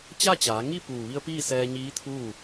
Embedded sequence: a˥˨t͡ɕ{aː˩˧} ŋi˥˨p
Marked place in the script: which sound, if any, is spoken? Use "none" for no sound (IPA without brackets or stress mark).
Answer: aː˩˧